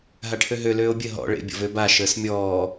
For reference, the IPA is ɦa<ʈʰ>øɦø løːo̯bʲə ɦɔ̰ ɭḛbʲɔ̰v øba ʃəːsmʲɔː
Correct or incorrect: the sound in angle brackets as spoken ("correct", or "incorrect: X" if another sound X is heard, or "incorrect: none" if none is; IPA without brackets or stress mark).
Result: correct